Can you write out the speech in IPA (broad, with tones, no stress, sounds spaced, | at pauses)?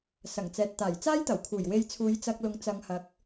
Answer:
s ɐ˨˩ ŋ t͡s ɛː˨ t̚ t̪ aː˨˩ j t͡s aː˥ j t̪ ɐ˨˩ w kʰ uː˨˩ j w e˧ j t͡sʰ uː˨˧ j t͡s ɐ˧ k̚ l ʊ˨˥ ŋ t͡s ɐ˨˧ ŋ h ɐ˨˥ k̚